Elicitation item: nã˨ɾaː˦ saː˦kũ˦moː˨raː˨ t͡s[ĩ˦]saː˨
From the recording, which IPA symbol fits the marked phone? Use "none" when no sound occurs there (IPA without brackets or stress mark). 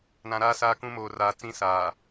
ĩ˦